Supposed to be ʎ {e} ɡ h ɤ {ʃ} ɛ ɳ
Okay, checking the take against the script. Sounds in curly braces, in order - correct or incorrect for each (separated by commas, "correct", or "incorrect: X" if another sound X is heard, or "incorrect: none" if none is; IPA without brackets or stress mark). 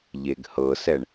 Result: correct, incorrect: s